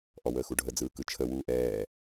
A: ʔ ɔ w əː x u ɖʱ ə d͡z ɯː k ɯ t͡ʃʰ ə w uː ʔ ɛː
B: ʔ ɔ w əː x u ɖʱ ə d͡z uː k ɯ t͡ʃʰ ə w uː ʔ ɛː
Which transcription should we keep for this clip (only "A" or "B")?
A